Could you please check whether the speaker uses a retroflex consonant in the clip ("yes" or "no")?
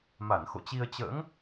no